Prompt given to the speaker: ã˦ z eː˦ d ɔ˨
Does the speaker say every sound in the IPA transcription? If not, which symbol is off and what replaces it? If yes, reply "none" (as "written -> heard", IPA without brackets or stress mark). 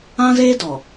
none